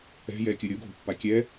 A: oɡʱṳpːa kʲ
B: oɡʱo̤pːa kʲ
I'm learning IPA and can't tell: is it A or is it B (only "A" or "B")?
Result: B